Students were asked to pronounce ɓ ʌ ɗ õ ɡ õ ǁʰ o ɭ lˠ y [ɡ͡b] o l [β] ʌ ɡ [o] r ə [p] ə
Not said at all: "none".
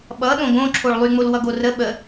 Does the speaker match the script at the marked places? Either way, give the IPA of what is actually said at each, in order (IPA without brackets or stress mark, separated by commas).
ŋ͡m, w, o, ɓ